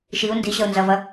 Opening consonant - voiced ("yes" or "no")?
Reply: no